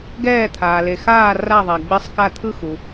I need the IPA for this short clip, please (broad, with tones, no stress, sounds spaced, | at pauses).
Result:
ɡ ɛː˦˨ t̪ʰ aː˨ l e˨ x aː˦˨ r a˦˨ ðˤ a˨ ɡ͡b e˦˨ sˤ k a˦˨ t̪ʰ ɯ˦˨ x u˨